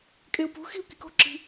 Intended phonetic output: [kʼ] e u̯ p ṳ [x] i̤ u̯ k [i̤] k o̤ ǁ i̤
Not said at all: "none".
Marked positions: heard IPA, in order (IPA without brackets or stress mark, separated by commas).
kʼ, x, i